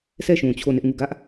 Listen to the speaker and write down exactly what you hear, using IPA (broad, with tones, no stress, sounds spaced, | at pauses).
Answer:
sʰ ɛ˦˨ ʃ ũ˨ t͡ɕʰ o˦˨ n ɪ˦ ʔ ŋ u˦˨ ɡ ä˦ ʔ